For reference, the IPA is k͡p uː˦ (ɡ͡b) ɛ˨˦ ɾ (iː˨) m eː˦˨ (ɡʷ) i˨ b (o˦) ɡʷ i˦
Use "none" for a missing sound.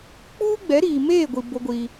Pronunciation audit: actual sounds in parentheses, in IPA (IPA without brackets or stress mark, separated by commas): ɡ͡b, iː˨, ɡʷ, o˦